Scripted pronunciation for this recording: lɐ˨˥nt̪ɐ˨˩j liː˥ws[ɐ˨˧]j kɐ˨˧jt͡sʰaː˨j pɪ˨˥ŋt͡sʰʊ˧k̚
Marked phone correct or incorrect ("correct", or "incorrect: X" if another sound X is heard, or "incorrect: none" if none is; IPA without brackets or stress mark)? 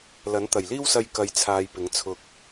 incorrect: ɐ˧